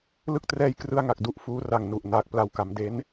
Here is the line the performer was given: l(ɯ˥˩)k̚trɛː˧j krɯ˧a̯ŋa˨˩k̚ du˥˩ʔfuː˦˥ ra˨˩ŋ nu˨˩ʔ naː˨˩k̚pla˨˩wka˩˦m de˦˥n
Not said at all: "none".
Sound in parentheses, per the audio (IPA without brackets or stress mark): ɯ˥˩